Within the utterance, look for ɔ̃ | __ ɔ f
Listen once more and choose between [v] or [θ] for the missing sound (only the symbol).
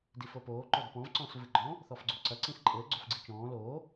θ